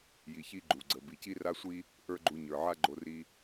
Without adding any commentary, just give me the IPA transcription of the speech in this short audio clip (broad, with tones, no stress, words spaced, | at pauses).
ji˩ çi˧ɡ͡ǃu˩ ɡ͡ǀə˩ bi˩ci˥ra˥sʷi˥ | ʔə˞˥ɡ͡ǃu˧ ɲə˞˩ʕa˥ɡ͡ǃo˧ ri˧